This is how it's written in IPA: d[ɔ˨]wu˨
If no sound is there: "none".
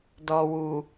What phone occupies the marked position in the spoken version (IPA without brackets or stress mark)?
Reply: ɔ˨